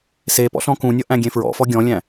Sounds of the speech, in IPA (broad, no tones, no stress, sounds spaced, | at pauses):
s e p ɔ̰ ɬ ɔ̃ k ũ nʲ ʌ ʔ æ̃ ɡʲ ẽ f ɹ ɔ̰ f ɔ ɡʲ ɔ̃ lʲ æ̃